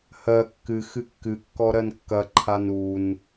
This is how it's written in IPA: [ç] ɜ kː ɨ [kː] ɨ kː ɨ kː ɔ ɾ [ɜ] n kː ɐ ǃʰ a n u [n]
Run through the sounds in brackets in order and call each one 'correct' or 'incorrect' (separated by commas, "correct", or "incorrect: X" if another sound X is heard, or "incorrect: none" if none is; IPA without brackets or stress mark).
incorrect: h, incorrect: x, correct, correct